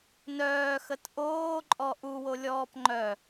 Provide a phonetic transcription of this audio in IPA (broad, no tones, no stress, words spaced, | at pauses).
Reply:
nœːxət ʔoːǃʼɔ ʔuwolʲɔːp ŋ͡ǃœ